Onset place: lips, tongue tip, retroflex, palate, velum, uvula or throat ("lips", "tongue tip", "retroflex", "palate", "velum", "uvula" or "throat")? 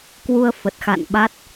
velum